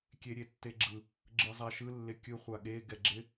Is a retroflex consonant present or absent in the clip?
absent